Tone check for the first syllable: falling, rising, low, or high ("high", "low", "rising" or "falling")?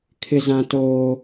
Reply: high